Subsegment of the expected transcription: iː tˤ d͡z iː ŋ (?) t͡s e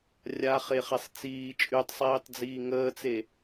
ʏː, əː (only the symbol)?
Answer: əː